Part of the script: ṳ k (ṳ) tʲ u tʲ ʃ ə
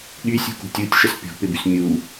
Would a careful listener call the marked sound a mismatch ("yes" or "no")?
no